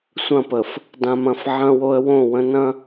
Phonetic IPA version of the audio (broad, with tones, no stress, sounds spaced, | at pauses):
sʷ ɐ̃˦˨ p ə˨ f | d ã˨ m ɐ̃˨ f ʕ ɐ̃˦ w o˦ ə̯ w õ˦˨ w ə̃˦ n ɐ̃˦